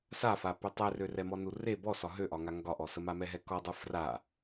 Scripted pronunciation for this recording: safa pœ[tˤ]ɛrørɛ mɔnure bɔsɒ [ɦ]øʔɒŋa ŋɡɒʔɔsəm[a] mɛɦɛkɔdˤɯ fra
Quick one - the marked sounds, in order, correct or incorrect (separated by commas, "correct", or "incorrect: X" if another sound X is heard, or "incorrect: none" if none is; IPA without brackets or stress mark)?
correct, correct, correct